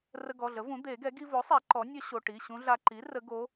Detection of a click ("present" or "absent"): present